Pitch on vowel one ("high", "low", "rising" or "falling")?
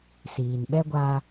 low